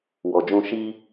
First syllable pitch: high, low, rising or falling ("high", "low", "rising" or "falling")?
low